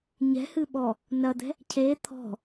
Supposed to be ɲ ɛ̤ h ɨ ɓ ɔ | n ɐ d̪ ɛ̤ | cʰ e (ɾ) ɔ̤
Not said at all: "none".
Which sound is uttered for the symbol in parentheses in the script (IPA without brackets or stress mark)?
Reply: t̪ʰ